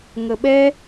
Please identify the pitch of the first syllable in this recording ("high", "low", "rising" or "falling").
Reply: high